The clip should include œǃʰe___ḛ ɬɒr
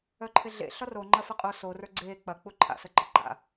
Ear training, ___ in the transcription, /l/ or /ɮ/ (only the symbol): ɮ